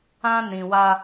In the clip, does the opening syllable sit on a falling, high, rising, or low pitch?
high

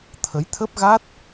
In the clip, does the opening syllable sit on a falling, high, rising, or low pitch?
rising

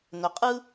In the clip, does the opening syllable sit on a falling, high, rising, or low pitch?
low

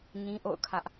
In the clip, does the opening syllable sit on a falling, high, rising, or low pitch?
high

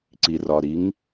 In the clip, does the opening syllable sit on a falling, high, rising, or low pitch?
low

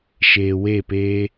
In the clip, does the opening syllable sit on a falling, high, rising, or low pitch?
low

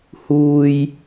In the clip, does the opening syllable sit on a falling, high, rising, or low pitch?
low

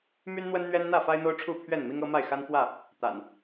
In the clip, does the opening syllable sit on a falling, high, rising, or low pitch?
high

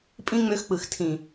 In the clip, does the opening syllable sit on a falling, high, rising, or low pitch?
high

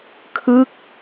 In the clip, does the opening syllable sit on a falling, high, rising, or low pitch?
falling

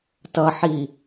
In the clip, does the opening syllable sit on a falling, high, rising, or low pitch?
low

